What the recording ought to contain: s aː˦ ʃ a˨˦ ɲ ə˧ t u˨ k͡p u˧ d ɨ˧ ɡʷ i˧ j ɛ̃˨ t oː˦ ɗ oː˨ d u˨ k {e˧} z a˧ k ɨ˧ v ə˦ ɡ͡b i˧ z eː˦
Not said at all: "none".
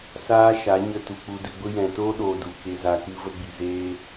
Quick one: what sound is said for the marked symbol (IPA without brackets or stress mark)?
e˧